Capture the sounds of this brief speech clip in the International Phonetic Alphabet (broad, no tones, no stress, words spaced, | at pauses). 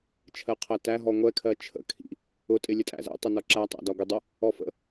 t͡ʃʰɜqʰɜtæ ɦɔŋʷɛ kʰɜt͡ʃʰə̰ kʰḭ | ʊ tʼɪlʲətʼæ̰zɛ̰ tˤʊnɔǁæ tˤæ̰dɒɡʷɪ dˤʊ | ɔfə̰